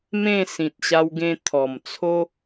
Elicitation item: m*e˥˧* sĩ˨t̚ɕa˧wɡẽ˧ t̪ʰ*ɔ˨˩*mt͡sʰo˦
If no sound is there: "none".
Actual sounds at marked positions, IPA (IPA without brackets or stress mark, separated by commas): ẽ˥˧, ɔ˨˩